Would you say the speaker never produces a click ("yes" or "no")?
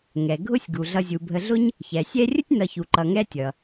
no